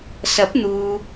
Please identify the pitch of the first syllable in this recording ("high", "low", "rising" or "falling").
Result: rising